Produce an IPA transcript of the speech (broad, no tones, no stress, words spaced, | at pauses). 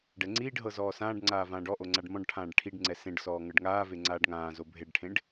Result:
ɖɛŋ͡ǀiːɖɦɤ zɔːsãːɖŋ͡ǀaː vãːɖɔʔo ŋ͡ǀaɖmɔ̃ɖʈʰãːɖ ʈʰiɖŋ͡ǀɛ sẽɖsɔː ŋɤɖŋaːve ŋ͡ǀaːɖŋãːzo bʱeɖʈʰẽɖ